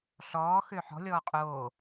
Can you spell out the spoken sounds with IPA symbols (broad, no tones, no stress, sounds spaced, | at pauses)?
ɬ ɔː x ø ħ ɔ̤ lʲ ɔː qʼ oː